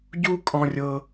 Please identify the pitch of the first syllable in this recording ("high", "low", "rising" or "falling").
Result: high